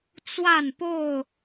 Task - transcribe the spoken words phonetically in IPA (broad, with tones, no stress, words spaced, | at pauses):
t͡swa˥˨npo˥˨ʊ̯